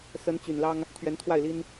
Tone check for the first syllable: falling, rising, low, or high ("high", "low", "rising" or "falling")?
rising